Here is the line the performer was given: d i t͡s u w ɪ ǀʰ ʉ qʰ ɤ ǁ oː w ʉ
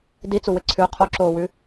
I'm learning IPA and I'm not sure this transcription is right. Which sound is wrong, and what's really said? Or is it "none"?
ɤ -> o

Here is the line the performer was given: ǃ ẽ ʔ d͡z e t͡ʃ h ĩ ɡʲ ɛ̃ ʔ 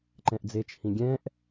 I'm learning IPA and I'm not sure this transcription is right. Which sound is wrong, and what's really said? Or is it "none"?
ẽ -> ɛ̃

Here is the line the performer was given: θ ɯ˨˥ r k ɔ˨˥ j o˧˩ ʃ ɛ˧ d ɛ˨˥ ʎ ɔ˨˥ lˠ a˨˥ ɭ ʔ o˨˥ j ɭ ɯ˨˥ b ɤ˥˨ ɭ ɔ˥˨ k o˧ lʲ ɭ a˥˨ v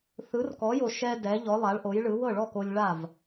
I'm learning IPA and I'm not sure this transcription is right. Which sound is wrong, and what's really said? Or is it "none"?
b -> w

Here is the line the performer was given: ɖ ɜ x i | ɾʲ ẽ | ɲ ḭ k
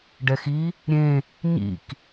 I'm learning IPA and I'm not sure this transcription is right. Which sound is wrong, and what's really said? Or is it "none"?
ɜ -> ɛ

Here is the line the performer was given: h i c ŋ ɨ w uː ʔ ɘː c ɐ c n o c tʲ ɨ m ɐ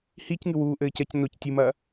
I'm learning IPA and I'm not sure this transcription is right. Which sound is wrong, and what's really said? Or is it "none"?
none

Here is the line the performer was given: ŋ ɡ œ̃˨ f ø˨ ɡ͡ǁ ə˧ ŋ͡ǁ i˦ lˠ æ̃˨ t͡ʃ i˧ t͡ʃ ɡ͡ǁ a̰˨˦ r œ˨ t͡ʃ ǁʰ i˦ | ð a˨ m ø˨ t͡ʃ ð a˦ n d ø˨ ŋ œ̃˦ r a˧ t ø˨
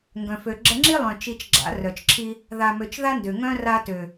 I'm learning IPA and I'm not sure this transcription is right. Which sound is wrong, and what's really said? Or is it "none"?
æ̃˨ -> œ̃˨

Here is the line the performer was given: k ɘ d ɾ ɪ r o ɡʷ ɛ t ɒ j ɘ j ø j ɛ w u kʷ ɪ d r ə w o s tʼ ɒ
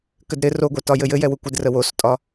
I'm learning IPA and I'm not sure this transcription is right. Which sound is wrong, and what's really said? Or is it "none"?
ø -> ɘ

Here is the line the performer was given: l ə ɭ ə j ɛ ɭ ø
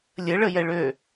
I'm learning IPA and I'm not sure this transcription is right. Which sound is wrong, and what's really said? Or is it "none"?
l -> lʲ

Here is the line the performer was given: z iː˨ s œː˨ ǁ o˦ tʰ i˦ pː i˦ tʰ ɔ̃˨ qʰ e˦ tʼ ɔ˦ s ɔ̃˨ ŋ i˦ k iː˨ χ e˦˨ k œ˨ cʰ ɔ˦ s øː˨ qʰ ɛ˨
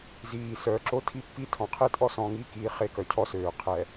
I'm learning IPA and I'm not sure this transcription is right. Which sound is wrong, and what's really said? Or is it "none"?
none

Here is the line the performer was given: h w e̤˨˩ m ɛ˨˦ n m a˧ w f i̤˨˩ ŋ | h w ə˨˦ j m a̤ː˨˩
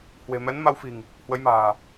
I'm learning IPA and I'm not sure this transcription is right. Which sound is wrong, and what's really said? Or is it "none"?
none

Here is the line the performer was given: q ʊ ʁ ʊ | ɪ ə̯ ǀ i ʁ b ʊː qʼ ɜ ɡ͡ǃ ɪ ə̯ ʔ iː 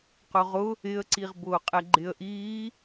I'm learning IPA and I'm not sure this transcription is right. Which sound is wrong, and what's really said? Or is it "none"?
ɜ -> ɛ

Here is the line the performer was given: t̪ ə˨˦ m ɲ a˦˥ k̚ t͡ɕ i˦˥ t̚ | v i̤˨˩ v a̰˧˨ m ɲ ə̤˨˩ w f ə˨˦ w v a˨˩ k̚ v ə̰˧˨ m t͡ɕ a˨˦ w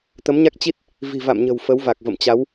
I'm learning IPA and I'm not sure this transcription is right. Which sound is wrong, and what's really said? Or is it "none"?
none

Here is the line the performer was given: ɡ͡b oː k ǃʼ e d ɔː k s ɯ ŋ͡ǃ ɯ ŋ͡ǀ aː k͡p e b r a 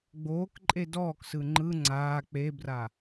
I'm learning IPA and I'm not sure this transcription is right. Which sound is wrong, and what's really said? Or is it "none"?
none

